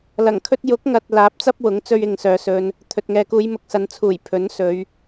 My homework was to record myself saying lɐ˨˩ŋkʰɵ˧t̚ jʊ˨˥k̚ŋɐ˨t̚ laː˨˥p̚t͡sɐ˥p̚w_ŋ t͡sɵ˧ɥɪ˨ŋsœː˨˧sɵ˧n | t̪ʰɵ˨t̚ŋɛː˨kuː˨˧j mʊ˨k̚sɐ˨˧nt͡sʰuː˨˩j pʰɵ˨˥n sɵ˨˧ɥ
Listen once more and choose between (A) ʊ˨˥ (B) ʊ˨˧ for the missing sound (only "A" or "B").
A